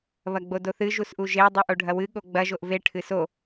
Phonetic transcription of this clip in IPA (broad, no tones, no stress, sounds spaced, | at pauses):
β ɐ ɡ͡b o d o θ ɨ ʒ u s ʔ u ʒ e dˤ u ʔ o ɖʱ ɐ w ɨ ɠ o ɡ͡b ɐ ʒ o ʔ v e ʈʰ ɨ s o